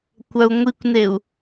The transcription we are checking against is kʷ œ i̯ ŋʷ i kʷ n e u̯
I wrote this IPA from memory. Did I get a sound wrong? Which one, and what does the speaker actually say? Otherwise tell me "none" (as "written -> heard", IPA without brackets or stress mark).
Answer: i̯ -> u̯